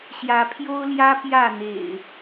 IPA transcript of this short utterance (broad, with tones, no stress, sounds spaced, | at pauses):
ɕ j ä˨˦ pʰ j o˦ ʊ̯ l j ä˦ p j ä˥˨ n̪ ḛ˨˩ ɪ̯